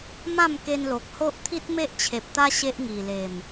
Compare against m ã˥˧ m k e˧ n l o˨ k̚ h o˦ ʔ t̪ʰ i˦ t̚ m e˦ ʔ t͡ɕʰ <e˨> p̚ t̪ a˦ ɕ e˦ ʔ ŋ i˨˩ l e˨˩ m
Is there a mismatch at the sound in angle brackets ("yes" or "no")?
no